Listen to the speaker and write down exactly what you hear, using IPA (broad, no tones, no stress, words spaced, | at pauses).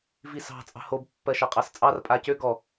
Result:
visɑ̤ t͡sʼɑ̤hob pːɜʃɑqʼɑst͡sʼɑr pʼacø ɡɔ